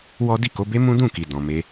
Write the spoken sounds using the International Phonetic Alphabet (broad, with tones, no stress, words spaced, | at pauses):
wɔ˦ di˦˨ko˨˦be˦ mũ˦dũ˦˨ki˨ dɔ̃˨me˧